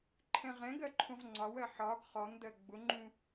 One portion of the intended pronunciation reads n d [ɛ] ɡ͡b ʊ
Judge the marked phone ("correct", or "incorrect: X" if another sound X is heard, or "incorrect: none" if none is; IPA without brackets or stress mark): incorrect: ɜ